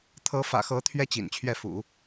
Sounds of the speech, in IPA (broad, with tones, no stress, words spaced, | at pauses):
t̪ʰɤ˧˥fä̰˨˩xɤ˧˥ t̪ʰɥɛ˥t͡ɕḭ˨˩nt͡ɕʰɥɛ˥˩ fṵ˨˩˦